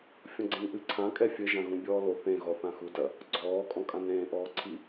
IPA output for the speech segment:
fʲ ɔ̃ ɡ͡ǀ ẽ n ʔ ɨ ǀʰ ã kʼ ɛ fʲ ɘ ʒ ã ɣ ũ bʲ ɔː l o θ ẽ ɣ ɔ θ ã x u d ɐ | ɡ͡ǀ ɔː kʼ ɔ̃ kʼ ã n ɾ ẽː ʔ ɔː ǀʰ i

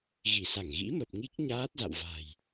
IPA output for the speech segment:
ɣ i˧˩ s a˧˩ ŋ ɣ ḭ˧˥ m ə˨˩ p̚ ŋ i˦˥ k̚ ɲ aː˦˥ t̚ z a̰˧˨ w v a̤˨˩ j

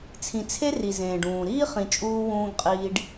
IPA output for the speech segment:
t͡sʰ ĩ˨ t͡sʰ e˦ r i˨ z ẽː˨ ɖ ũː˨ ɾ iː˦ χ ĩ˨ t͡ʃʼ uː˦ w ũː˦ ɡ qʼ iː˦ ɖ

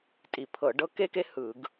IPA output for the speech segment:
tʼ i˧˩˧ pʰ ɤ˧˩˧ ɖ ɤ˦ k e˦ k e˦ h ɯ˧˩˧ ɡ

